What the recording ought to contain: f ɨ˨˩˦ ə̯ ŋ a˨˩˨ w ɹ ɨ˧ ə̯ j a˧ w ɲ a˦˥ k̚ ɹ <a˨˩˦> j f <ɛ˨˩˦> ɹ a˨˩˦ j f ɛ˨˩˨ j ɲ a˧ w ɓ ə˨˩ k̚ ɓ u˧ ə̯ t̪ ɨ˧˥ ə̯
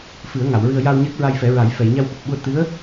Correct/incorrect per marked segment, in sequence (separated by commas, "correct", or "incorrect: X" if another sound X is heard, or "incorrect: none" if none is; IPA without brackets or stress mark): incorrect: a˧, correct